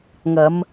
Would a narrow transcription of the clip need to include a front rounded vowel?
no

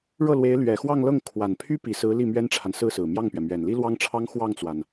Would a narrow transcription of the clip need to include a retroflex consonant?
yes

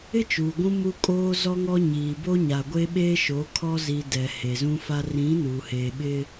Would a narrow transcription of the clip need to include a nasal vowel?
yes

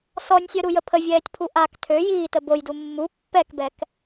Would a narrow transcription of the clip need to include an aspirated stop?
yes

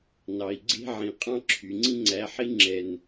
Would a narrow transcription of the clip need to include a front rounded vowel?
yes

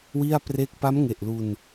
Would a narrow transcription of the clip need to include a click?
no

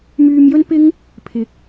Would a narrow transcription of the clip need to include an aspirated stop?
yes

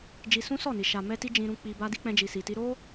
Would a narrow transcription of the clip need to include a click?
no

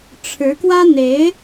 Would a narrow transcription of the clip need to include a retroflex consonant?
yes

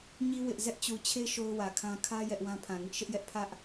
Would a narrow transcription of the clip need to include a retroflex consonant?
no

